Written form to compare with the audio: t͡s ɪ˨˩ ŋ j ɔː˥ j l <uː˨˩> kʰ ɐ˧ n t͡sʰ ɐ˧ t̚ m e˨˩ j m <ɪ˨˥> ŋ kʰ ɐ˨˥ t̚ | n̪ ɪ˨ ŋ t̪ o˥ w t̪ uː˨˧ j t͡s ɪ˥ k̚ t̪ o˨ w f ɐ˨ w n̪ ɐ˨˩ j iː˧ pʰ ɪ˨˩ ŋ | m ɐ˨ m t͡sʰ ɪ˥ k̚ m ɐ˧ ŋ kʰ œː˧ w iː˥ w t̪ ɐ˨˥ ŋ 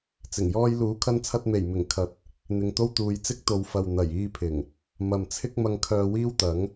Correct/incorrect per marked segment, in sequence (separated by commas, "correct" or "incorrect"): incorrect, incorrect